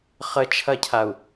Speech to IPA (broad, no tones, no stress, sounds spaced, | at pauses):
χ ə t͡ʃʰ ɐ cʰ a u̯